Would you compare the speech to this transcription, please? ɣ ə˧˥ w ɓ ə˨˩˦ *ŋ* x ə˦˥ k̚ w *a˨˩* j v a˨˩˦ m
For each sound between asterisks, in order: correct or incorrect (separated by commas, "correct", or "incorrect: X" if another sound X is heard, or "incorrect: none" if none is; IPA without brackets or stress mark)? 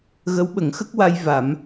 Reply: correct, incorrect: a˧